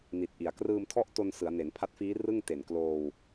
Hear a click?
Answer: no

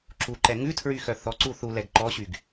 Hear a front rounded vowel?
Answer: yes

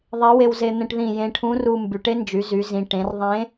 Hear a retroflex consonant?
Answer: yes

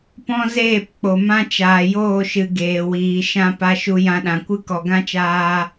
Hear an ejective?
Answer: no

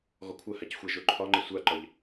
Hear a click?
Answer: yes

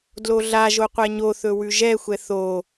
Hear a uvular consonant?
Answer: yes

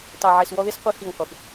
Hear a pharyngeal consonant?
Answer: yes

